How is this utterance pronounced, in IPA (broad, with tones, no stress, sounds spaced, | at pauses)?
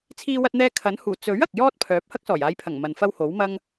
t͡sʰ iː˧ w ɐ˧ t̚ n̪ ɛː˧ kʰ ɐ˨˥ n h uː˨˩ t͡s ɵ˨˥ ɥ ɐ˨ k̚ j ɔː˥ t̚ pʰ œː˨˥ p̚ h ɐ˥ k̚ s ɔː˨˩ j aː˨˧ j pʰ ɐ˨˩ ŋ m ɐ˨ n f ɐ˥ w h o˨˥ w m ɐ˥ ŋ